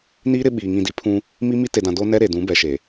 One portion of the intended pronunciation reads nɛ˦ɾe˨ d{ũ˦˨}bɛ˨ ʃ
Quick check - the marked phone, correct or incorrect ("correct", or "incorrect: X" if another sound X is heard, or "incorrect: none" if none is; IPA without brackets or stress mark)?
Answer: incorrect: ũ˨˦